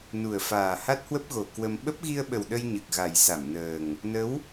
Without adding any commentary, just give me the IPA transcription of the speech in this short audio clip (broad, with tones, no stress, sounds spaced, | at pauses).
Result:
n u˨˩ ə̯ f aː˨˩ h a˦˥ t̚ h w ə˦˥ p̚ ɣ o˨˩ k w ə˧ m ɓ ə˦˥ p̚ ɣ i˧ ə̯ ɓ ə˨˩ w ɗ ə˧ j ɲ ɨ˨˩ k̚ ɣ a˨˩ j s a˧˩ m n əː˨˩ ŋ | n ə˨˦ w